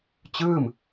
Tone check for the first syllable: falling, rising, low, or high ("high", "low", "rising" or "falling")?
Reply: falling